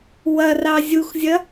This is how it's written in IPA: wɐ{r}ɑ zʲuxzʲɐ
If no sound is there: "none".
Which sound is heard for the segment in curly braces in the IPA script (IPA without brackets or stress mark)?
r